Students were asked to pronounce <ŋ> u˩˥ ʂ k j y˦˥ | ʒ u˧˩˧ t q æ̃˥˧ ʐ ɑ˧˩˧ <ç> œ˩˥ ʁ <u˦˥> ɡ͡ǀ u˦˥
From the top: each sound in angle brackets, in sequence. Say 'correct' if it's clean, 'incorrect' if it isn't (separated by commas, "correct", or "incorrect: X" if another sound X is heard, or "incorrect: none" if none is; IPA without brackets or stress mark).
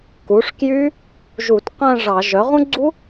incorrect: k, incorrect: ʒ, incorrect: ũ˦˥